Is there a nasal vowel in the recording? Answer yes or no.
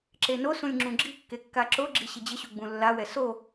yes